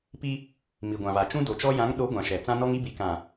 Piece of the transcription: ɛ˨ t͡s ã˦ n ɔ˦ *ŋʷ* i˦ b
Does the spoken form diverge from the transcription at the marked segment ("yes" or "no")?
yes